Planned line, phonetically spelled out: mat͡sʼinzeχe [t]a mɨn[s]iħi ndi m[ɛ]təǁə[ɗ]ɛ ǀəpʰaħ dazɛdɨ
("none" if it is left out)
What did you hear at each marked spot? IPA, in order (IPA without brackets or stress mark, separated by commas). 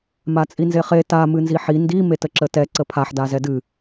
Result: t, z, e, t